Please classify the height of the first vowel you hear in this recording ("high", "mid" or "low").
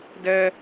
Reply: mid